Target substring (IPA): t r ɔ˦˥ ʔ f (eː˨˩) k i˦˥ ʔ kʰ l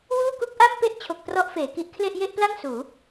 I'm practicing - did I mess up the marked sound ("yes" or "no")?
yes